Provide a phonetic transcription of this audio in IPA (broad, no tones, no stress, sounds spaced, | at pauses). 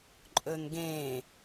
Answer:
ǃʼ ɵ n ɡ ẽ